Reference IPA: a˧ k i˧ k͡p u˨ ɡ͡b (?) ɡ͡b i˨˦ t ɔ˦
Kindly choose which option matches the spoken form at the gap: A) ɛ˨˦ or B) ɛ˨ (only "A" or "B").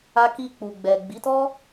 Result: B